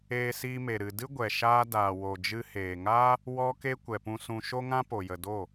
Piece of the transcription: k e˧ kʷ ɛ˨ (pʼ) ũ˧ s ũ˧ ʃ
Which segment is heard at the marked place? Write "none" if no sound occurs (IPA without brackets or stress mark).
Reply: p